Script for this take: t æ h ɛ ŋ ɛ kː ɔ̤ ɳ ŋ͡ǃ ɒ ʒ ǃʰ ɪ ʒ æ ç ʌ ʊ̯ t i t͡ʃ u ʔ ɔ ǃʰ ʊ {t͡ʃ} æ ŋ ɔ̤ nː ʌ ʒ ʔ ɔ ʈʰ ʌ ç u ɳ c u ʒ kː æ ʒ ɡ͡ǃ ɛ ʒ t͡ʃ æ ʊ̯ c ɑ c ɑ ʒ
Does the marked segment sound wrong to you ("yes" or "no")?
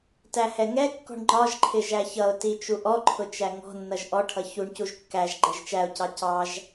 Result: no